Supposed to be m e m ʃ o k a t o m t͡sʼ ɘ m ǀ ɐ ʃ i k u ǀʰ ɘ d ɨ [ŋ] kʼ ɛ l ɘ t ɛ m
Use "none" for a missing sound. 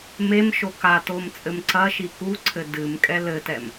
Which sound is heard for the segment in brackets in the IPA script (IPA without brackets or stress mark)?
m